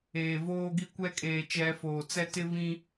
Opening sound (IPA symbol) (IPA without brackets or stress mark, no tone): eː